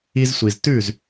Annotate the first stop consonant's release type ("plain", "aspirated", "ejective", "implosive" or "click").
plain